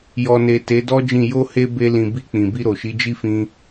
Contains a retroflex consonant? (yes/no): no